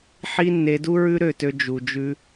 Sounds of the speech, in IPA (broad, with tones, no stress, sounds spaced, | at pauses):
ħ i˦ nː e˧ d u˦ ɹ ʉ˦ ɾ ø˦˨ t ø˧ d͡ʒ u˨ d͡ʒ ʉ˧